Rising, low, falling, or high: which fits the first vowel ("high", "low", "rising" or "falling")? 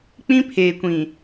high